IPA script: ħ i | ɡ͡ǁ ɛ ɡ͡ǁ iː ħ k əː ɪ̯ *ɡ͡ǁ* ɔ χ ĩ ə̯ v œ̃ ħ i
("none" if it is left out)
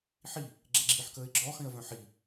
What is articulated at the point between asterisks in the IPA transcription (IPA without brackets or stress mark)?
ɡ͡ǁ